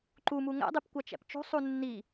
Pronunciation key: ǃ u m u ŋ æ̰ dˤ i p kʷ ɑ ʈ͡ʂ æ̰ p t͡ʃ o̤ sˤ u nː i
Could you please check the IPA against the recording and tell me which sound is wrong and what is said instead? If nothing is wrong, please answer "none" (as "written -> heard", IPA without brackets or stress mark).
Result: ʈ͡ʂ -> t͡ʃ